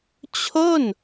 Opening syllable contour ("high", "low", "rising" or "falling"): falling